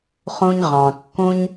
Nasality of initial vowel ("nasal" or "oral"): nasal